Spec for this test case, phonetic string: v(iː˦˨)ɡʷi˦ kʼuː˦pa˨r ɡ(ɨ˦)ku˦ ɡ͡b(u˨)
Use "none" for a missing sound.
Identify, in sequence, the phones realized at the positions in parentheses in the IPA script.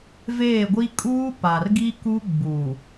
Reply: eː˦˨, i˦, uː˨

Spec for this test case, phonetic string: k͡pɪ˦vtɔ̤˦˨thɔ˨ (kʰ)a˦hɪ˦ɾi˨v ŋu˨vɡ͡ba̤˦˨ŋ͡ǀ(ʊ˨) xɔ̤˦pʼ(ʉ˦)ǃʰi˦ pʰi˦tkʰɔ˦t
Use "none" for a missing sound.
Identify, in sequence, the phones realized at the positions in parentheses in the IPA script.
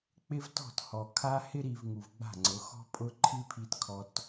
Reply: kʰ, ʊ˨˦, ʊ˦

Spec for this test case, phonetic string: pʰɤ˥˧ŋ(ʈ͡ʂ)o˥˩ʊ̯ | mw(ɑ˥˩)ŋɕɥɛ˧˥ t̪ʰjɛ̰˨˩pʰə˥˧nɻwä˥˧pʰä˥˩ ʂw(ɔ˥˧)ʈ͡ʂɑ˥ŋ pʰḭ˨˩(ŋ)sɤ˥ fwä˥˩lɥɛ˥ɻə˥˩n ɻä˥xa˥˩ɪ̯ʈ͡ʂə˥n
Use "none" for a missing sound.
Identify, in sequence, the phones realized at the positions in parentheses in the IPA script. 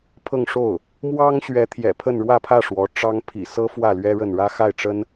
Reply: ʂ, ɑ˥, ɔ˧˥, none

